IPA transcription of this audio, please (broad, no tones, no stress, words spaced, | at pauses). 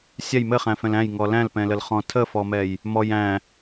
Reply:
sʲɛj mɘχæ̃fɛ̃l æ̃jŋɔ læ̃lpɛ̃ləlχɔ̃ tʰəfɔmɛj | mɔj æ̃